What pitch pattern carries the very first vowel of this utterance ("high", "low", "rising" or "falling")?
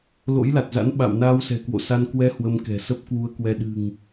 rising